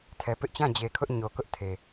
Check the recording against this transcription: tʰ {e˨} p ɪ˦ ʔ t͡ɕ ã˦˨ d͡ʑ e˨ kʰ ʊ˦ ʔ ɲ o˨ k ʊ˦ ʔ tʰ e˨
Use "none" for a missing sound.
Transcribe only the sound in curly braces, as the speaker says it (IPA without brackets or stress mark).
ɛ˨